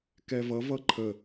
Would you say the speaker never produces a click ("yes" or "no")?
no